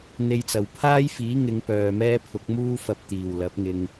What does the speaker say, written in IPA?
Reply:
n̪ e˨ j t͡s ɐ˨˩ w pʰ aː˥ j f iː˨˥ ŋ ɪ˨˧ ŋ p œː˨ m ɛː˥ pʰ ʊ˨˥ k̚ m uː˥ f ɐ˧ p̚ t̪ iː˨˩ w l ɐ˨˥ p̚ ŋ ɪ˧ ŋ

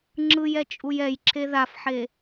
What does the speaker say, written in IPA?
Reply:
ŋ͡ǁ ɯ j ɛ t͡ʃʼ u j ɛ j ǁʰ e ð a f ħ e

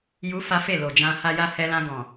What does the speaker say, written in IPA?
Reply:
j u˦ f a˦ f e˦˨ l o˨ d͡ʒ ã˧ h a˧ j a˧ h ɛ˧ l ã˧ ɡ ɔ̃˨

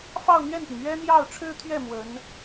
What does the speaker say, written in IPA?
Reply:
f ɑ˥˧ ʊ̯ n̪ ɥ ɛ˥˩ n p i˩ ŋ ɥ ɛ˥ n̪ j ɑ˥˩ ʊ̯ ʈ͡ʂʰ ɻ̩˥ t̪ʰ ɥ ɛ˥˩ m w ə˧˥ n

